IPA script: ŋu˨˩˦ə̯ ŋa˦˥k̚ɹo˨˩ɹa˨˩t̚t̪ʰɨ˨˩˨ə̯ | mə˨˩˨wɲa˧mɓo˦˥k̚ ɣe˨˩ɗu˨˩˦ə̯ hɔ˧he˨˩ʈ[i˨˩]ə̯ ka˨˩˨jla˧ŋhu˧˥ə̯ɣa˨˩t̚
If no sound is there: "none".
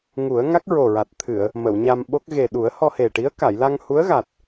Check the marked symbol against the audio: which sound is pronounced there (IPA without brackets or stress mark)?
i˧˥